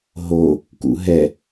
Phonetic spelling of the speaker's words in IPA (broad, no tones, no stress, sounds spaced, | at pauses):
ɦ o | k ṵ ɦ ɛ